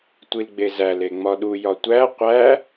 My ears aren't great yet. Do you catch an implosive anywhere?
yes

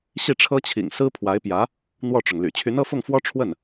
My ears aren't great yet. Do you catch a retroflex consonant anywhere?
yes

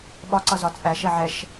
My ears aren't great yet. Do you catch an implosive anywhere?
yes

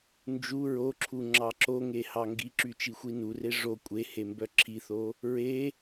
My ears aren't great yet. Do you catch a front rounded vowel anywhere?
yes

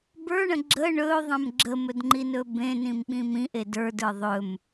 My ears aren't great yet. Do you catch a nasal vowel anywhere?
yes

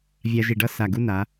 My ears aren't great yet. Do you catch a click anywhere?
no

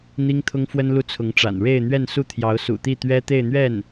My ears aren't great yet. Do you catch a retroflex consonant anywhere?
yes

